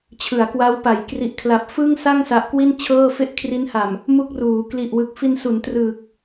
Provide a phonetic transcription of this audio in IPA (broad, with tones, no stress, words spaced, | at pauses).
t͡ɕʰɯ˩˦a̯kwa˦˥wpa˩˦j kri˨˩ʔkʰla˨˩p̚ fɯ˥˩ŋsa˥˩ŋ sa˦˥ʔkwi˥˩nt͡ɕʰɤː˥˩ fe˥˩ʔkʰri˦˥nha˨˩m | mu˥˩k̚ruː˩˦ kli˨˩ʔwɯ˨˩k̚fi˧nsu˩˦n trɯː˨˩k̚